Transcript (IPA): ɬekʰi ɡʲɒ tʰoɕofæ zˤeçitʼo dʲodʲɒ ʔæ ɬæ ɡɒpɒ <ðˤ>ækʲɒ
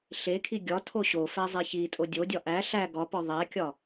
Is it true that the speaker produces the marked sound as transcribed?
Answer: yes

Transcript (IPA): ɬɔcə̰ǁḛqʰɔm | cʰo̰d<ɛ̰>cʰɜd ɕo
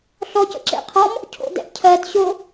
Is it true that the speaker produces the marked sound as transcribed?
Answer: yes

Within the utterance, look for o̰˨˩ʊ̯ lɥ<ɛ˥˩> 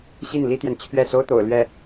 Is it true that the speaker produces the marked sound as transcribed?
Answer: yes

